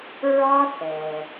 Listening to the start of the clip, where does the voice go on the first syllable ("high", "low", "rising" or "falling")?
high